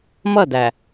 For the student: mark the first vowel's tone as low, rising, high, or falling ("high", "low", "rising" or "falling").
falling